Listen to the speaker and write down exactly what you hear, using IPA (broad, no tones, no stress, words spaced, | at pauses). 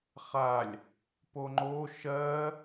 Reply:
χalʲ | poŋ͡ǃo ʃɜː